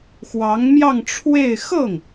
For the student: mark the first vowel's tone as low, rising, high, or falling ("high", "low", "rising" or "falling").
rising